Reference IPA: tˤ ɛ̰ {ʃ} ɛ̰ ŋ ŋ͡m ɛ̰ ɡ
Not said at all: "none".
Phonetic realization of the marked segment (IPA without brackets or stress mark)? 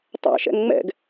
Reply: ʃ